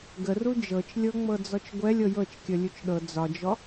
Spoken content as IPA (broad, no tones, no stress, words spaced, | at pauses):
ɡəru d͡ʒɤt͡ʃlʲɤŋ͡mɤd͡zɔt͡ʃ ɡʷɛlʲ ɤjɤt͡ʃkʲə lʲut͡ʃɗɤ d͡zɒd͡ʒɔ